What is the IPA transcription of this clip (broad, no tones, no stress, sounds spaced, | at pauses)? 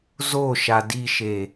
z o ʃ a d i ʃ e